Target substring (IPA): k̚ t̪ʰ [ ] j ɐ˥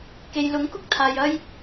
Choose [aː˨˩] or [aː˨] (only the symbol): aː˨